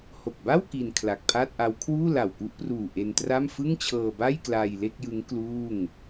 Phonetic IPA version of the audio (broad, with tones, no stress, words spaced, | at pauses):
ho˨˩k̚ba˥˩w ki˧nkʰla˨˩k̚pʰaː˥˩t̚ʔa˦˥w kʰwuː˥˩la˨˩wku˦˥ʔpruː˨˩ ʔe˧ntra˥˩m fɯ˥˩ŋt͡ɕʰɤː˧ba˥˩j klaː˧jle˥˩k̚jɯ˦˥ŋ kluː˥˩ŋ